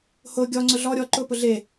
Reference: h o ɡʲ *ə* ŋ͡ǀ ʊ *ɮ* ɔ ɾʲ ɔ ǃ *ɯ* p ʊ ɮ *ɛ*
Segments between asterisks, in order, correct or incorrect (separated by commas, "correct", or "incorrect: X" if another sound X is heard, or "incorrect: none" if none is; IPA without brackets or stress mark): incorrect: ɔ, correct, incorrect: ʊ, incorrect: e